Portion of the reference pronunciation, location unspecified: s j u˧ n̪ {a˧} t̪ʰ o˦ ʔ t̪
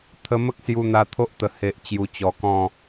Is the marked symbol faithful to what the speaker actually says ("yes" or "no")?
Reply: yes